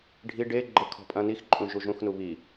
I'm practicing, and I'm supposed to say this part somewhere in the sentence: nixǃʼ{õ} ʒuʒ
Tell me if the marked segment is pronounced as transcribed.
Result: no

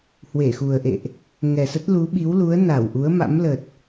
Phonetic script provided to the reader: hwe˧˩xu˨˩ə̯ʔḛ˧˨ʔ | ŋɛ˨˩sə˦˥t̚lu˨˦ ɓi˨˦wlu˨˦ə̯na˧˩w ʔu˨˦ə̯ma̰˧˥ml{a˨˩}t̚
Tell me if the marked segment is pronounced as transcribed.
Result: no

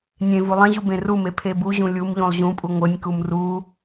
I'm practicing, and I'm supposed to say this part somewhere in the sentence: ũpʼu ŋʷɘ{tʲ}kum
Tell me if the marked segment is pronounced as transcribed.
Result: no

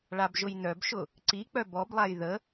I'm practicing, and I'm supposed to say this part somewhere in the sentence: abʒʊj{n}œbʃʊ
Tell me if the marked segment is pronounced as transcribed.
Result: yes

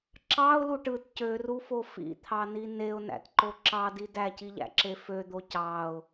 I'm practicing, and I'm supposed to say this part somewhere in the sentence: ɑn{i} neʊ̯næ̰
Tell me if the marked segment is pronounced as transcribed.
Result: yes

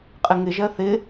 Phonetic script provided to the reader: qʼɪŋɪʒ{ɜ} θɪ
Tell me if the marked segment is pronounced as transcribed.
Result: yes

